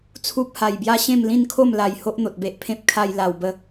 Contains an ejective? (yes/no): no